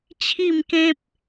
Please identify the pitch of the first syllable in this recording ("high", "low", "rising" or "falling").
falling